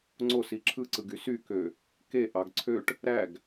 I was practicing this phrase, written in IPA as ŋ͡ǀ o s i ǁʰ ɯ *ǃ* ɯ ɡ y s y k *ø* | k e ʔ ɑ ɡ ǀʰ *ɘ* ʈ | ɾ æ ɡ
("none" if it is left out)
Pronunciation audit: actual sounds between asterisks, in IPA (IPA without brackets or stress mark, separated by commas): ǀ, ø, ø